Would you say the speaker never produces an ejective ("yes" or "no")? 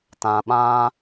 yes